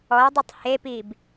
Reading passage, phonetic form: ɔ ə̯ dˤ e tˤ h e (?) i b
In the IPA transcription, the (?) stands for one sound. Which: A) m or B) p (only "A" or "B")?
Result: B